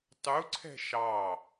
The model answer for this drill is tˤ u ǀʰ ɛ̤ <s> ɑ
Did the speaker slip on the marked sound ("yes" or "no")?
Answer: yes